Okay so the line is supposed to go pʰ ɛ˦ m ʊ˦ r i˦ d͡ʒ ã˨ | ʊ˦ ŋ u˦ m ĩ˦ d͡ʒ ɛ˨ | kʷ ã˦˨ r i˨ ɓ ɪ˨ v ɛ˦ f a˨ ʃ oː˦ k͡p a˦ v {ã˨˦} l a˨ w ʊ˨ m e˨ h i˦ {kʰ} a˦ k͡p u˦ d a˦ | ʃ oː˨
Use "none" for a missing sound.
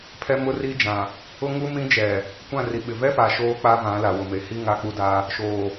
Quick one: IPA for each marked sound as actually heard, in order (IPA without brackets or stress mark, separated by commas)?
ã˨˦, ŋ